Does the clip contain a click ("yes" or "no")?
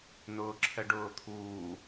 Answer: yes